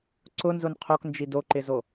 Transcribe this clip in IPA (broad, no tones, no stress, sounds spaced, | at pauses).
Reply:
ǀ ʊ n z ʊ n qʰ o k n d͡ʒ i d o ǃ ɪ z o